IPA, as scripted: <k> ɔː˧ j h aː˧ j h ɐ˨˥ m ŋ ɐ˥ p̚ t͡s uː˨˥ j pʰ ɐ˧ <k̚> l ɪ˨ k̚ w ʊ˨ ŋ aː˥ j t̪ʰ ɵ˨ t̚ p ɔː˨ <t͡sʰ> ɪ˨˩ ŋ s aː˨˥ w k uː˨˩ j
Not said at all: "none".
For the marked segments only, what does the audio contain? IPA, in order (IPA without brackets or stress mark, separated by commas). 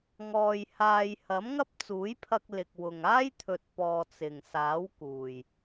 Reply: ŋ, k̚, t͡s